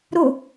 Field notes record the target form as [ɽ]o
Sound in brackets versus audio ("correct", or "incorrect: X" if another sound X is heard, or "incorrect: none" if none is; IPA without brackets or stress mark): incorrect: ɾ